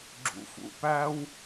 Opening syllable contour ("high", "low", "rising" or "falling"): low